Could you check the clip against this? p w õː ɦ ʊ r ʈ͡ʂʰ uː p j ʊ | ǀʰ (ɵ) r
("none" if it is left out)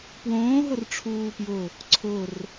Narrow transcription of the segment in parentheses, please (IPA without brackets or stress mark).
ʊ